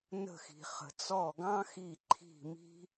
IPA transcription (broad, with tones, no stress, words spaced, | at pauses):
nə̤˦˨xi̤˨χə̤˨ t͡sɔ˦˨ɡɑ̃˥xi˦˨ ǃʰi̤˦˨ mi̤˥